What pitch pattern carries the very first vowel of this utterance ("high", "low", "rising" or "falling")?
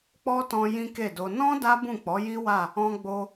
high